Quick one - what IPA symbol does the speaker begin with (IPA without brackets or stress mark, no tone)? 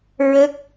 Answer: ɹ